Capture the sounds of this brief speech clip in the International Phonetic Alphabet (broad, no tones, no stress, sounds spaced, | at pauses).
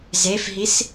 z e f ɦ i s